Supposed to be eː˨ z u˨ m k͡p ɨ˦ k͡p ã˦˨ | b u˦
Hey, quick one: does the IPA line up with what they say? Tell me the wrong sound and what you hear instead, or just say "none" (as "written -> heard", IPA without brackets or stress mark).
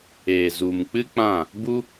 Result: none